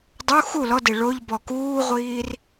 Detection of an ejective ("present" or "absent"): absent